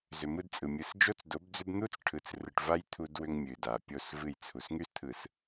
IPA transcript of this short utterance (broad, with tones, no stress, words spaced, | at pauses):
zʏ˨mɯ˦dt͡sʼɯ˨ mʲɯ˨sd͡ʒo˦t͡sdo˨˦bd͡zʏ˦b n̪u˦t͡sʈʰɯ˨t͡s rɯ˨ʈva˦j t̪ʰu˦dwʏ˦ŋ mʲɨ˨da˨ pʲo˦˨svɨ˦˨j t͡sʰu˨sŋy˦st̪ʰɯ˨s